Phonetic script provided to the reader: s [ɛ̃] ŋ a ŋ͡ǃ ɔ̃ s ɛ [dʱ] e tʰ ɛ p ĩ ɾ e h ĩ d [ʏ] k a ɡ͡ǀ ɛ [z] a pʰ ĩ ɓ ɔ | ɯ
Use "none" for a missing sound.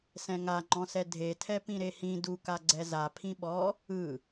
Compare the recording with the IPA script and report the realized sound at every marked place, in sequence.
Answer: ɛ̃, dʱ, u, z

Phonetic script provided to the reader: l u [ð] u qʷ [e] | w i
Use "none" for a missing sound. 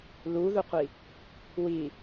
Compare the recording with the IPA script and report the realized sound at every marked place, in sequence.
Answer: ð, i

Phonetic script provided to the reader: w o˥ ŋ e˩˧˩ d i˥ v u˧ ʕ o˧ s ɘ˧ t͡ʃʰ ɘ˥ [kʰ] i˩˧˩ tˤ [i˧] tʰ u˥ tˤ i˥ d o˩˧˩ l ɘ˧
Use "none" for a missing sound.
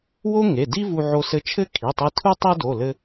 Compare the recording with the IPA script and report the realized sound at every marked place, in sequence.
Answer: kʰ, i˧

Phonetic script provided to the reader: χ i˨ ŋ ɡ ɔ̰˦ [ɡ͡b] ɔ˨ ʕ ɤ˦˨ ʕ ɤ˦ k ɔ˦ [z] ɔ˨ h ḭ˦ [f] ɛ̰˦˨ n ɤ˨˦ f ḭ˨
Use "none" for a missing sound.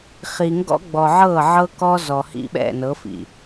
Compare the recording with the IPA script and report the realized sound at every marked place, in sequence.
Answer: ɡ͡b, z, ɓ

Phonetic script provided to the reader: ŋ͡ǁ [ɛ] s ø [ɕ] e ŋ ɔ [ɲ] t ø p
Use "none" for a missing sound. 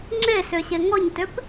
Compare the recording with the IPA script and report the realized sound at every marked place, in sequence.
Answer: e, ɕ, ɲ

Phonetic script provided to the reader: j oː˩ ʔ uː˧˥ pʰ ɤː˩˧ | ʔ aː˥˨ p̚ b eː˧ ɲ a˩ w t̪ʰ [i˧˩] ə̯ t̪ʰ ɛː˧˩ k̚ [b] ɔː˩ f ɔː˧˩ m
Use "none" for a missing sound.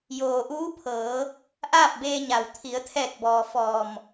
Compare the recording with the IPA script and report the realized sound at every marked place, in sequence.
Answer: i˩˧, b

